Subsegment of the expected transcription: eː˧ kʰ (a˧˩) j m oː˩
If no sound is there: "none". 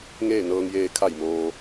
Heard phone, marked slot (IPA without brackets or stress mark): a˧˩